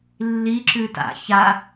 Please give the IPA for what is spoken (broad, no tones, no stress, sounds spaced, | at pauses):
lː i ǁ ʉ t a̰ ç a